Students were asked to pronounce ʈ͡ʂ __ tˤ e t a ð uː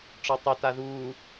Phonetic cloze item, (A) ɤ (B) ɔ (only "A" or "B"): B